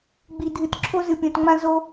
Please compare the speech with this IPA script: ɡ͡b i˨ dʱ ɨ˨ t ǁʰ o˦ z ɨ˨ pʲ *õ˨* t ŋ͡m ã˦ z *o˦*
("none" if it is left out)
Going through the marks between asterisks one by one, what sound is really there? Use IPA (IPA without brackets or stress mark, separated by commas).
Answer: õ˨, o˦